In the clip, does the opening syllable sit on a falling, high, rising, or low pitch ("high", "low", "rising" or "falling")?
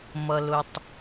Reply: low